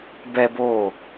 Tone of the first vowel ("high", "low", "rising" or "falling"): high